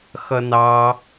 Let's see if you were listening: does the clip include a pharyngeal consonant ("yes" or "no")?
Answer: no